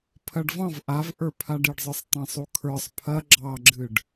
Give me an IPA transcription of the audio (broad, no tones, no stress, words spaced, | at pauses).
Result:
pʰɐɖvɑ̃v ʔav ʔə˞pʰaɖiɖzˤə˞sˤ tˤɐ̃sˤukʰə˞sˤ pʰɐ ɡ͡ǁɑɡ͡ǁɨɖ